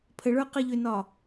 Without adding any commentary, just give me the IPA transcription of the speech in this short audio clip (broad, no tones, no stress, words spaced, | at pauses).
pʰəɭə˞ qɘʎʏnɒ